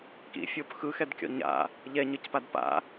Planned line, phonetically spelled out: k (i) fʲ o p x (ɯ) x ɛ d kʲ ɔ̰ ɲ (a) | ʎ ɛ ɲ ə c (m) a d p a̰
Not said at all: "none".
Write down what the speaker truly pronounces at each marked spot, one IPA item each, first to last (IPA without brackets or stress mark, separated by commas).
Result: ḭ, ɯ, a̰, p